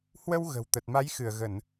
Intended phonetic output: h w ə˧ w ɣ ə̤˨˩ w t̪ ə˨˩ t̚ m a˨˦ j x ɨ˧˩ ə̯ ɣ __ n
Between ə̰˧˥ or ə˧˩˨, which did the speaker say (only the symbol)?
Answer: ə˧˩˨